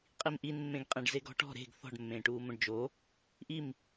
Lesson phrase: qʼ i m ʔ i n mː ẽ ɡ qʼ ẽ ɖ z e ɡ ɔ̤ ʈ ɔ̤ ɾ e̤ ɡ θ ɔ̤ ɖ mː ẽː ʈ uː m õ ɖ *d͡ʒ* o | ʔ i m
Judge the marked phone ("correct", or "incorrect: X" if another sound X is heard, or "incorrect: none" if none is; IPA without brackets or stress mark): correct